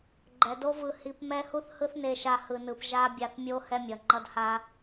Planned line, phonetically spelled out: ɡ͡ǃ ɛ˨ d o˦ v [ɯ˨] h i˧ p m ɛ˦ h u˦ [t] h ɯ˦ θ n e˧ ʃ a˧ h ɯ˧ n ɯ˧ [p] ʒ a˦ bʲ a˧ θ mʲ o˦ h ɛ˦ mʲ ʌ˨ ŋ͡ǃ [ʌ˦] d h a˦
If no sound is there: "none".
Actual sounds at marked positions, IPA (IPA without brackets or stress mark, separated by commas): ɯ˧, θ, p, ʌ˦